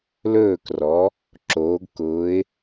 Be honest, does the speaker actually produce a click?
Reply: yes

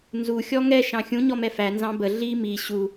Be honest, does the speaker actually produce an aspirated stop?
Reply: no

